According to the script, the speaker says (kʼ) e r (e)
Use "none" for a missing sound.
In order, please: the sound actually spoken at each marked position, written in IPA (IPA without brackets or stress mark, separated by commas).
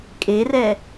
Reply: kʼ, ɛ